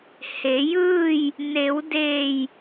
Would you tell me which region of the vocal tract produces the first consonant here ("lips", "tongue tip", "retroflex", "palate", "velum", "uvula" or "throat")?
throat